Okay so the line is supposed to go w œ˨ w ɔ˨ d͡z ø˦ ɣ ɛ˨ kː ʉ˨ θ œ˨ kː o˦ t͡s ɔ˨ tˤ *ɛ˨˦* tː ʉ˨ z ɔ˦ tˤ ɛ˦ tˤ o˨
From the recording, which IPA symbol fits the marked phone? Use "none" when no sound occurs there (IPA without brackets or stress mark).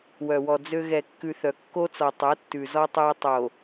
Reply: ɛ˨˦